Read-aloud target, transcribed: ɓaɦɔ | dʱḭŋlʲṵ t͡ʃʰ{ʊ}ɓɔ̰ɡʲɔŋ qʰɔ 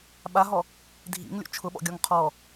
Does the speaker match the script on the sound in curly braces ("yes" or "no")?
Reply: yes